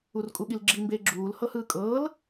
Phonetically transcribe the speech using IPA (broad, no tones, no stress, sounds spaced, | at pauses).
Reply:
u r kʼ u ɠ i l ɡ͡ǁ i m b e ɡ͡ǁ uː l h ɤ h ɯː kʼ ɤː l